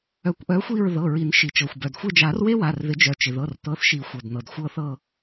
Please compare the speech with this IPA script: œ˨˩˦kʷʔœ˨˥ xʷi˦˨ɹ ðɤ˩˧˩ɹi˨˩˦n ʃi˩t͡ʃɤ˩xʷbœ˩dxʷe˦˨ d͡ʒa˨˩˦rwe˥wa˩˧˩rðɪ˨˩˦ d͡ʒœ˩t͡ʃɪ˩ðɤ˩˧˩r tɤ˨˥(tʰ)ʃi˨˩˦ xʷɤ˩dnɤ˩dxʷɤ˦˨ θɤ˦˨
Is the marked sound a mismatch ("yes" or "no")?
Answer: yes